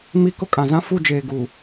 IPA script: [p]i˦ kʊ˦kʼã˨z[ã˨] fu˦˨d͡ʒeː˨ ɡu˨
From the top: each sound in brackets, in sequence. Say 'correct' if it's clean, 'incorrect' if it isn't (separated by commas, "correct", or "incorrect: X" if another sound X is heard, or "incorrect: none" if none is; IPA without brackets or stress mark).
incorrect: m, incorrect: ã˦